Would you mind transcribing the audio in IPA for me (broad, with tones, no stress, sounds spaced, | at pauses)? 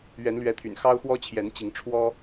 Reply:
ɥ ɛ˨˦ n l ɥ ɛ˨˦ t̪ʰ y̰˨˩ n x ɑ˦ ʊ̯ x w ɔ˦ t͡ɕʰ j ɛ˨˦ n t͡ɕ i˨˦ ŋ ʈ͡ʂʰ w ɔ˦